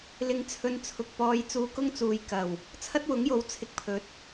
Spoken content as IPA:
l ɪ˨ ŋ t͡sʰ ɵ˨ n t͡sʰ ʊ˨ k̚ p ɔː˧ j t͡s uː˧ k ʊ˥ ŋ t͡s uː˨ j k ɐ˨˩ w | t͡sʰ ɐ˥ t̚ w ʊ˨˥ ŋ j o˨˥ w t͡sʰ ɪ˧ k̚ pʰ ɵ˨˥ t̚

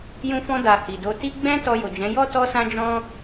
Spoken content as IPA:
j ũ˧ f ɔ̃˧ d a˨ h i˨ d o˧ t i˦ ɡ͡b ɛ̃˦ t ɔ˧ j o˨ d͡ʒ ɛ̃˨˦ j ɔ˦ t ɔ˦ s ã˦ d͡ʒ ɔ̃˦

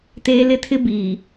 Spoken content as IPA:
t eː˦ l ɪ˦ tʰ ɪ˦ b iː˨

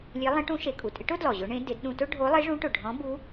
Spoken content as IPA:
lʲ e˧˥ lˠ ẽ˧˥ ʈ ũ˧˥ ʃ e˩˧ kʼ u˩ tʼ ɪ˧˥ ʈ ʊ˥ d l ɔ˩ ʑ ʊ˧˥ ɳ ẽ˧˥ d ɪ˩˧ d ɗ ũ˧ t ʊ˥ ɖʱ o˧˥ lˠ e˧˥ ʐ ũ˧˥ ʈ ʊ˩ ɖʱ ɔ̃˧˥ b u˧˥

